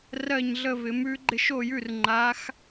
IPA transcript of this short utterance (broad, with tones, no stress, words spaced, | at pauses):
rɜ˦˨ɲɮə˦˨vɪ˨˦mʉ˦ ɡ͡ǃɪ˦˨ʃo˦˨jʉ˦˨r ŋ͡ǃa˨˦x